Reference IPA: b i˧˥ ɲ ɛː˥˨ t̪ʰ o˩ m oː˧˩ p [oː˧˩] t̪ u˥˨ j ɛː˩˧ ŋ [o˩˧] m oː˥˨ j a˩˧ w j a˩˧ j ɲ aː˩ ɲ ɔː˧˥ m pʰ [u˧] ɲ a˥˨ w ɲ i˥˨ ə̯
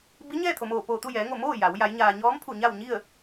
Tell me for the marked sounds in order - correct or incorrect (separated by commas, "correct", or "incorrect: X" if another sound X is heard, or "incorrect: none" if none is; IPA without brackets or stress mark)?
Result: correct, incorrect: o˧˩, incorrect: u˧˩